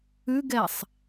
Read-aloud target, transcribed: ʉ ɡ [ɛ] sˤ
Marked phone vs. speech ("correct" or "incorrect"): correct